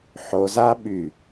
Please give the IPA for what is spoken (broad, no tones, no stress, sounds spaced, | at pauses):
ħ o z a ɓ y